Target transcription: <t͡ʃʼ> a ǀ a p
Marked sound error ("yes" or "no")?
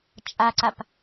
no